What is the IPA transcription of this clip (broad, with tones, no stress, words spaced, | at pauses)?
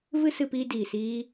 vɨ˦sɨ˧piː˧ diː˨siː˧